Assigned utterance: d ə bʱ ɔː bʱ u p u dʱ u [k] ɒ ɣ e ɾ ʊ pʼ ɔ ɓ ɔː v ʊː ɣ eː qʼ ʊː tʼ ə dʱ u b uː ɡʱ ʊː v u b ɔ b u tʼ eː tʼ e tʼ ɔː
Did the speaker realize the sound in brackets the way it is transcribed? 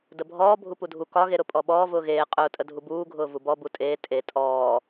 yes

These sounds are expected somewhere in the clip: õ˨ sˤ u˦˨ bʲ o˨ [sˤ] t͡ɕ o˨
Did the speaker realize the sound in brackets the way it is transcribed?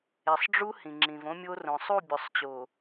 yes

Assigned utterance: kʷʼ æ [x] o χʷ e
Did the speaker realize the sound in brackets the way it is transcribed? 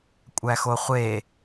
yes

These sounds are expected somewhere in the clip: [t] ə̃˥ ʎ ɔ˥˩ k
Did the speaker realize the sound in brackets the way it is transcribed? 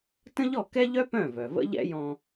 yes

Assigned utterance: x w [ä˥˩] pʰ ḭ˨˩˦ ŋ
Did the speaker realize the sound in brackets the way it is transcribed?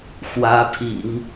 no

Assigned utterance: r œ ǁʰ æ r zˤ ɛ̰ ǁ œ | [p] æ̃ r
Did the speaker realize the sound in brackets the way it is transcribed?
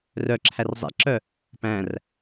yes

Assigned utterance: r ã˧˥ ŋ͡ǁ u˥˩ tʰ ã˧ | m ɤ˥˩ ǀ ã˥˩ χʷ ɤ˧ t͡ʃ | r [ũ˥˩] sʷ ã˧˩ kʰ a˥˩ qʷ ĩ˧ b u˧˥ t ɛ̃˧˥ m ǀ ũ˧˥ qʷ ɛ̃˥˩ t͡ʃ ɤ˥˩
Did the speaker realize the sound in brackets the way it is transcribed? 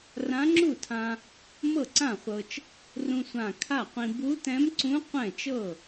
no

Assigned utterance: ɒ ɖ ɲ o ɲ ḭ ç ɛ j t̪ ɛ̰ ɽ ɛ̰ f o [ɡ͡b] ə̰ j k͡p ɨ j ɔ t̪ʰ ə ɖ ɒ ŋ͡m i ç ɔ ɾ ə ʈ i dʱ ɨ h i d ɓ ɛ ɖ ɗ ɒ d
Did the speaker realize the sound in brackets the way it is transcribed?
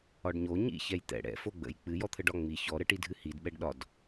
yes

